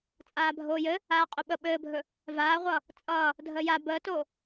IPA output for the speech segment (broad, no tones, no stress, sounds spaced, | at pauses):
t͡sʼ aː bʱ oː j ɘ | aː qʼ ɵ ɓ ə ɓ ɘː bʱ ɵ | v aː ʁʷ ʌː | t͡sʼ ʌː | dʱ əː j a b əː t o